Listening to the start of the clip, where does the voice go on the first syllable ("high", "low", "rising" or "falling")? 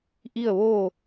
falling